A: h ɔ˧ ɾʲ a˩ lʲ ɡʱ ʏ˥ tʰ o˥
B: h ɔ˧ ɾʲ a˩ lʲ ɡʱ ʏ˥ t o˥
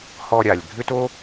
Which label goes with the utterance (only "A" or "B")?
B